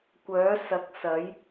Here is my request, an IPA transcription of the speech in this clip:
kʷ œː˨˥ s ɐ˨˥ k̚ s ɐ˨˥ j

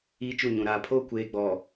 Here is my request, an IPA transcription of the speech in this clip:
iː˦ t͡ʃ u˦˨ ɲ ũ˨ ɾ aː˨ pʰ oː˦ kʷ eː˨ ɡ͡b ɔ˨

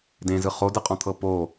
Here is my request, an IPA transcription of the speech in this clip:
d ẽ z ɯ χ o d ɯ qʼ ɔ̃ t̪ʰ ɤ p o

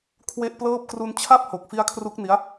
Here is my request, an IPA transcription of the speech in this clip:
kʰ w e˥˩ ʔ p l ɤː˥˩ p̚ k r u˧ n t͡ɕʰ a˦˥ p̚ h o˨˩ k̚ f i˦˥ a̯ kʰ r u˦˥ k̚ n i˦˥ a̯

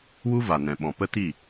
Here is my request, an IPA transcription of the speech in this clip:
w u˦ v a˨ n ɛ̃˨ ɓ ɔ̃˨ p ə˦ t i˦˨

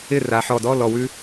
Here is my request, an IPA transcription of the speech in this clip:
ɪ˥˩ r a˩˧ ħ ɔ˧˩ d ɔ˧˥˧ l ɔ˧˩ w ʉ˦˥

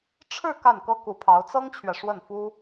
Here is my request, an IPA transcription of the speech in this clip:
ʈ͡ʂʰ ɻ̩˥˧ k a˥˩ n k ɤ˥ k u˧˥ pʰ ɑ˧˥ ʊ̯ t͡s ɤ˥ ŋ t͡ɕʰ ɥ ɛ˨ ʂ w ə˥˩ n f u˥

